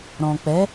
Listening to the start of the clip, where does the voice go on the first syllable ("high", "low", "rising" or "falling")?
low